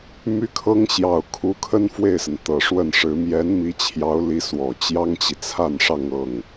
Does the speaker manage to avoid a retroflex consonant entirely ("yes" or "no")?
no